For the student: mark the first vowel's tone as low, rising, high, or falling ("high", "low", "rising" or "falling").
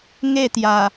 falling